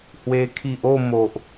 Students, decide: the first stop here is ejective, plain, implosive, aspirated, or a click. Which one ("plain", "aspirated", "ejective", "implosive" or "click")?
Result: aspirated